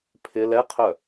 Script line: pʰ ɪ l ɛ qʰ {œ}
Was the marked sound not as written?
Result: no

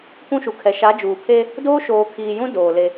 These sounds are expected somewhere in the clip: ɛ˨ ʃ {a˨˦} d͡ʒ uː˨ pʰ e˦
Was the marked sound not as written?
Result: no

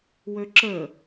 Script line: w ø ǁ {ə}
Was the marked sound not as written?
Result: no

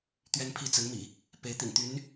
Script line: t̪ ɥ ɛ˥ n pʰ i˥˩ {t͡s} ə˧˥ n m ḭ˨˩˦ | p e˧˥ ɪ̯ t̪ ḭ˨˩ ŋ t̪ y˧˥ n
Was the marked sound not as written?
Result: no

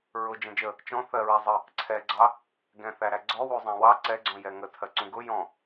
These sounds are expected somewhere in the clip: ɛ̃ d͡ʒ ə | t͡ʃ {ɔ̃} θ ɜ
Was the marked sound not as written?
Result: no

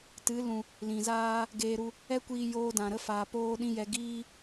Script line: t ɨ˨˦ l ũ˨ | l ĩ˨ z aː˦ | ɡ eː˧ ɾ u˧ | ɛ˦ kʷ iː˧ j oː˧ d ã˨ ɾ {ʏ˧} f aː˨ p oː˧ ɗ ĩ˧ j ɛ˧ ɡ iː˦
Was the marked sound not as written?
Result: yes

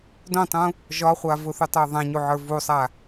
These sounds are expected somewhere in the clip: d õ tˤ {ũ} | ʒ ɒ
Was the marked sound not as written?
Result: no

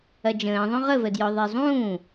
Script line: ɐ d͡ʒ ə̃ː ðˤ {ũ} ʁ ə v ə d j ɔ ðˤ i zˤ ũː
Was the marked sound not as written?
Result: yes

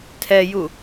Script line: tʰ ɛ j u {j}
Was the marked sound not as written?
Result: yes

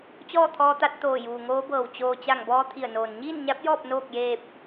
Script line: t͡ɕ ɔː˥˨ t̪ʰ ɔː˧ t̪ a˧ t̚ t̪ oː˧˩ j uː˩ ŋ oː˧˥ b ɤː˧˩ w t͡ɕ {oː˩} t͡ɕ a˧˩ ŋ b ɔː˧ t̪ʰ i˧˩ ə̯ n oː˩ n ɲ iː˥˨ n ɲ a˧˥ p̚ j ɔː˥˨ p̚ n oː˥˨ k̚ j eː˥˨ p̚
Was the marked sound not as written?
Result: no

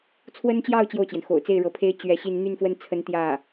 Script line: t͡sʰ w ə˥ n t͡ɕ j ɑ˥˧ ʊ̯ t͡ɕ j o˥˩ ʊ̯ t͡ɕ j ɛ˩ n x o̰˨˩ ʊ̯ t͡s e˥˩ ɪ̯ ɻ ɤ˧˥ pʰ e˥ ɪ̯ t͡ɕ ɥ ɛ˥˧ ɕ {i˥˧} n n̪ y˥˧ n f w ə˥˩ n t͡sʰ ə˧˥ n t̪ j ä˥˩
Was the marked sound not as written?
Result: no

